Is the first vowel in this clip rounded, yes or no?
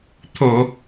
yes